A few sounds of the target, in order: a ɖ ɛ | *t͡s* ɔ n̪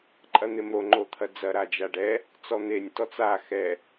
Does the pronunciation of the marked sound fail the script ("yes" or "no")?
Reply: no